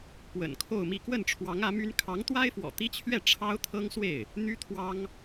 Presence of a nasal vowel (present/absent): absent